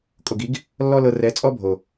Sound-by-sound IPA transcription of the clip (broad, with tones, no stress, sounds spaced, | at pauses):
kʼ o˨ ɡ i˨˦ ɡ | lː ɔ˦ l ɤ˧ r ɛ˨˦ t͡sʼ ɔ˦ bʱ o˨